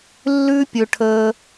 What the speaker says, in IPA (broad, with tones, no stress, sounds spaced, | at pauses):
lː ʉ˦ pʲ ɵ˧ ʈʰ əː˧